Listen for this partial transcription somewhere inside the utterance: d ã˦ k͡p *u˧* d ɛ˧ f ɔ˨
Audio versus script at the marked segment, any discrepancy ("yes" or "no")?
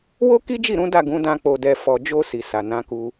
yes